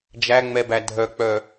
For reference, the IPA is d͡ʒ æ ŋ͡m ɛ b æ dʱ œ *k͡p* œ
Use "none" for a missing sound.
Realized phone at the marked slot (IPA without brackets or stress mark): k͡p